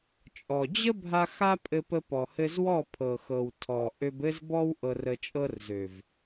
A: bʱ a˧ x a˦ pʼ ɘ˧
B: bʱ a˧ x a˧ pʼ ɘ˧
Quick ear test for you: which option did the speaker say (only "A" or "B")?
A